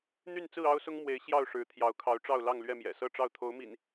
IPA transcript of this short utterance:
n̪y˥˨nt͡sɹ̩˥˨ ɑ˦ʊ̯sʊ˦ŋmwe˨˦ɪ̯ ɕjɑ˥˨ʊ̯ʂɻ̩˨˦ t̪ʰjɑ˨˦ʊ̯kʰɑ˨˦ʊ̯ʈ͡ʂɑ˥˨ʊ̯lɑ˥˨ŋ lɥɛ˥˨mjɛ̰˨˩ sɤ˥˨ʈ͡ʂɑ˥˨ʊ̯ t̪ʰo˨˦ʊ̯mḭ˨˩n

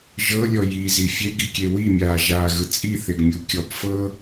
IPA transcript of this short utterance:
ʒɤlʲɔ jizi fʲeɡikʲe wimʲaːʒaːɣɯ t͡sʼiθeɡmʲu kʲɔp fɤ

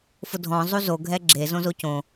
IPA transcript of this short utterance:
fʊdʱɔ̃ zˤuzo ɡʱɛɡ͡ǁe zõzocõ

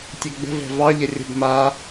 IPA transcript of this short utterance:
tʲɛɡ͡bə̤vɛ̤ vɑʎə rʲə̤b ma

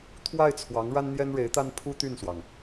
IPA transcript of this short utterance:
t̪ʰwa˥˩ɪ̯t͡sʰwɑ˧˥ŋ ɻa˥nn̪jɛ˥nɻe˧˥ɪ̯t̪a˥n pʰu˥t̪y˥˩nswɑ˩ŋ

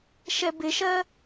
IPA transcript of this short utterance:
ʃɛbɪʃɜ

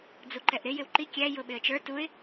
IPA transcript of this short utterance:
d͡zuǃɛʔɾɪ jɪwǃi kʲæ jʊɓɪə̯t͡ʃə˞ tuɪ̯

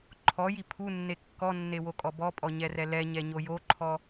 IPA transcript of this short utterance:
ǃʰɔji pʰunːe kːɔnːewokʼɔ bɔpʼɔɲɛrɛ lɛɲɛɲo joǃʰɔ

